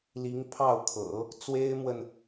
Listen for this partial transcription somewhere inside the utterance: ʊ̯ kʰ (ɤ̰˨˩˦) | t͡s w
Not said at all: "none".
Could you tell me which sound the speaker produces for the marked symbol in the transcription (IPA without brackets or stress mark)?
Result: ɤ̰˨˩˦